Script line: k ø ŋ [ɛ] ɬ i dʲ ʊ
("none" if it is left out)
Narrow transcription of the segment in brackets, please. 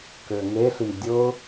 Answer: e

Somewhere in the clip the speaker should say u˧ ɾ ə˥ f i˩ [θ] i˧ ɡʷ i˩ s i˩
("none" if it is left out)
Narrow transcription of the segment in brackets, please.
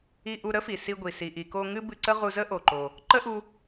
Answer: s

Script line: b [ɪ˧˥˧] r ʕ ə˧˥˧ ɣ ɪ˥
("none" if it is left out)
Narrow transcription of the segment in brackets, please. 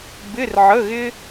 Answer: ɪ˧˥˧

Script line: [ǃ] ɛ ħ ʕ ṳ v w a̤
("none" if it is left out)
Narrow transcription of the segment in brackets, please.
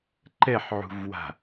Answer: ǃ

